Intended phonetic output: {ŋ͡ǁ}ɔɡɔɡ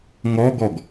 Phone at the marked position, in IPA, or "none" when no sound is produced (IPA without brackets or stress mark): ŋ